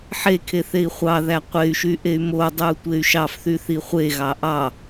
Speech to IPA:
ħekʰeθei̯ χʷɑðæ qʷey̯ʃyʔey̯ modˤyu̯tʷey̯ ʃɑfθyθi χʷeɣɑ ʔɑ

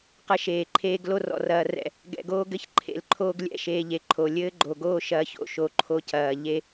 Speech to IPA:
qɐ˦ʃeː˨ǃʰeː˦ɡ lo˦rɔ̰˨rɐː˨rɛ̰˨ | ɡɛ̰˨ɡoː˦ ɡɘ˦çǃʰḛ˨lǃʰoː˦ɡ lʲɛ̰˦˨ ʃeː˦ʎe˦ǃʰo˦˨ lʲɘː˦ɡ͡ǃo˨ɡoː˦ ʃɐː˦ço̰˦ ʃo˨ǃʰo˦cɐː˨ ʎe˦

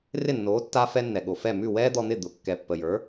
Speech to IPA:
rɪ˥˩nːoː˩˥ tːa˧fɛ˧ nːɛ˩ɠo˩ fɛ˥˩ mʉ˥˩wɛː˥d̪ɔ˧n̪ɪ˥˩ d̪ʊ˩kːɛ˩ pːə˩jə˞˩˥

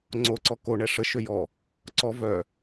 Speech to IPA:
ŋ͡ǀoǀɔ koɳɛ ʂəʃø jɔ | ǀɔ vœ

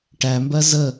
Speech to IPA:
ʈæmbɜ zə

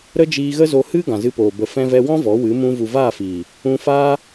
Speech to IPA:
ɾə˦d͡ʒiː˧ɣə˦zo˧ hɨ˦ ɡã˨zɨ˧poː˨ bə˨ fɛ̃˧vɛ˧wɔ̃˦ vɔ˨˦wɨ˨˦ mũ˧vu˨vaː˦˨fiː˨ | ũ˧faː˦

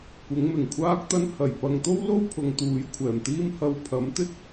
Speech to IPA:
kʷɪ˨˥ŋmɪ˨˩ŋkʷʰaː˥k̚t̪ɐ˥n hɐ˨˩jpɐ˨ŋt̪o˥wlo˥w pʰʊ˨˧ŋt̪uː˨˧j kʷʰɛː˨˩mt̪iː˥m hɐ˧w pʰɐ˨˥mt̪ɪ˥k̚

